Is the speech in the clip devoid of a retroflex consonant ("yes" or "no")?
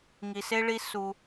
no